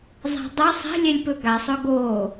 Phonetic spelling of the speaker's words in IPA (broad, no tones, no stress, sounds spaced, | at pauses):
zˤ a̤ dˤ ɵ sˤ ɛ̤ lʲ ɛ lʲ p ɵ ɡ a sˤ ɵ ɡ o